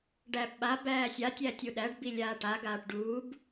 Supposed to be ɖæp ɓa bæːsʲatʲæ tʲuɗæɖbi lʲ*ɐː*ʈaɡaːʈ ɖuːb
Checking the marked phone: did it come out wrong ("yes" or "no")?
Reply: yes